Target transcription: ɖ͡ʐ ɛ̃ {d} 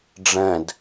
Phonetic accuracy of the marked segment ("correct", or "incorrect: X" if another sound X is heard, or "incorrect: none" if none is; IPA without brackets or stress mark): correct